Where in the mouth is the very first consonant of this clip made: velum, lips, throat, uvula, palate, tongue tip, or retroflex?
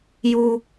palate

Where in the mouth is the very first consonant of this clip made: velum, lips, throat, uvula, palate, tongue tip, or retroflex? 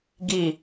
velum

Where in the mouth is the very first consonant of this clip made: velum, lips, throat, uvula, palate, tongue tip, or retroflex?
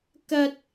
velum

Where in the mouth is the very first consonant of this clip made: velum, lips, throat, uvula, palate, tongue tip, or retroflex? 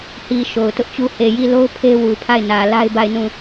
throat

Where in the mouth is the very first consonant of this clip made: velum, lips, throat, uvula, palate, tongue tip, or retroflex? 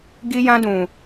velum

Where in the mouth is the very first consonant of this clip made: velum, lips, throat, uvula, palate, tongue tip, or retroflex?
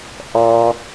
throat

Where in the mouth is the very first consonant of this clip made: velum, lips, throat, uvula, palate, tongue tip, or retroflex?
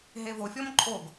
throat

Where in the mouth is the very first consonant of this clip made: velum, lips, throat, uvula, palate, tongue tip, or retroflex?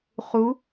uvula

